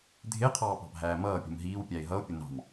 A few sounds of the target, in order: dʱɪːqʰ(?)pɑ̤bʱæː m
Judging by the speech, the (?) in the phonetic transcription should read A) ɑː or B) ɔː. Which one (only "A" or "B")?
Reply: A